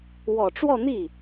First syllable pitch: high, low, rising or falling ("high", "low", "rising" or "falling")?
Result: low